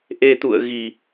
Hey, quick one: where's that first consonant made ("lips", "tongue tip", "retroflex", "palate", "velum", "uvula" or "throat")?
throat